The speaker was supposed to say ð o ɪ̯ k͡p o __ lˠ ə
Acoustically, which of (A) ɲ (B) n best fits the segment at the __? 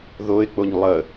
A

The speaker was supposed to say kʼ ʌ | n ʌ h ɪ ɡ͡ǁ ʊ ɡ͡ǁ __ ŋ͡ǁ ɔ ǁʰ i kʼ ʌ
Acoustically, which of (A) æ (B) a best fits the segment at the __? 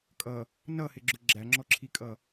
A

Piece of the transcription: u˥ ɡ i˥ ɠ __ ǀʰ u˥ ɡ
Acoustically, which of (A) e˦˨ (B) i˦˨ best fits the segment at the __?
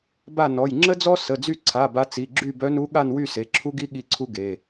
B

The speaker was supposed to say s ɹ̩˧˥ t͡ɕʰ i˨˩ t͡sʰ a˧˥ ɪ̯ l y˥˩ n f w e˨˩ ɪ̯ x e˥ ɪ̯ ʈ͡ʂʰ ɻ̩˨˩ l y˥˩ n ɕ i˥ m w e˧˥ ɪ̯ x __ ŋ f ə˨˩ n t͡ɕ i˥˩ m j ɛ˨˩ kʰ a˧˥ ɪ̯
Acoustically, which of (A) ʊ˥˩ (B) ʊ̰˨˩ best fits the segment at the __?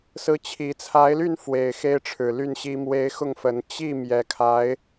A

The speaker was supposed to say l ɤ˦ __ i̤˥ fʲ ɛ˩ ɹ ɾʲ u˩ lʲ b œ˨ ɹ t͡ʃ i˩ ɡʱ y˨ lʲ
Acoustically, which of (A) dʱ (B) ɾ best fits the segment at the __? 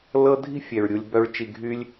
A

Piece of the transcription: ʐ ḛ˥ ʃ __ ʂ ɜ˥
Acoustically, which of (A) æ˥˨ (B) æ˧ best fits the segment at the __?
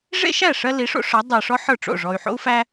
A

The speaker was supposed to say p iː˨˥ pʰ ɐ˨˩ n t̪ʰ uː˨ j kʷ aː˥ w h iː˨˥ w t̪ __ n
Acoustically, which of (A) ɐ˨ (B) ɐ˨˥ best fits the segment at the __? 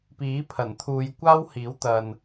A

